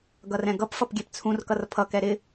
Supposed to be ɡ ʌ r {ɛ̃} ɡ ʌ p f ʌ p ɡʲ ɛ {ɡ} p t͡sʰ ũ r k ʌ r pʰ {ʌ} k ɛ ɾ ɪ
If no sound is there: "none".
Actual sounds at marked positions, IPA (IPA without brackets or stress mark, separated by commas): ɛ̃, none, ʌ